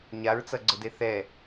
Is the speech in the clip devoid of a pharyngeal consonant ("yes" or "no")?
yes